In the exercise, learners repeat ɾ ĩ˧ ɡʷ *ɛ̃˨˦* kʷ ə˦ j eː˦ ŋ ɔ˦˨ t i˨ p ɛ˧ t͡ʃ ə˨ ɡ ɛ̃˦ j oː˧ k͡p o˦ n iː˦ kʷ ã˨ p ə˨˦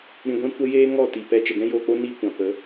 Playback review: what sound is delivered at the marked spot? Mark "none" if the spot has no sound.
ɛ̃˦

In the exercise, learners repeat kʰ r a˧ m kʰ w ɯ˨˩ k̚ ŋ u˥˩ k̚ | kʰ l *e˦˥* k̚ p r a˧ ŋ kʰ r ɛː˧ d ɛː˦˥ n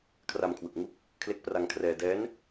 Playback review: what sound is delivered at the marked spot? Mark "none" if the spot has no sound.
e˦˥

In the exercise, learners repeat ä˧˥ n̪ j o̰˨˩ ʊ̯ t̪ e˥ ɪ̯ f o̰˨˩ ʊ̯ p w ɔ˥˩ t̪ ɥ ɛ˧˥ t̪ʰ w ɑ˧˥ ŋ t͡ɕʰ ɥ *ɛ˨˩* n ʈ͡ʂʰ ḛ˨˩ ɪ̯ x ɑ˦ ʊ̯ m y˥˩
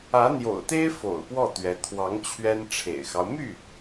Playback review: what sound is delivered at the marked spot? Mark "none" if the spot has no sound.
ɛ˥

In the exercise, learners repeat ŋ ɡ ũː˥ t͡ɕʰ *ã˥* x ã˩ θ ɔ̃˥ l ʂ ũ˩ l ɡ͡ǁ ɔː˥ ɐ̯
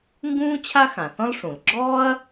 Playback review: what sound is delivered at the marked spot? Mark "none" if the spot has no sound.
a˥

